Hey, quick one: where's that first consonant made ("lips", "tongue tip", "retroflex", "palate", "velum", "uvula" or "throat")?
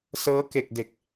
tongue tip